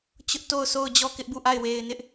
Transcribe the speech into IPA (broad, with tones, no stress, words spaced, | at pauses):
t͡ɕʊ˦ʔto˦˨ʊ̯ sʰo˦˨ʊ̯d͡ʑɔ˦˨ kɪ˦ʔbu˦˨ʔa˦˨ɪ̯ we˨ɪ̯nɪ˦ʔ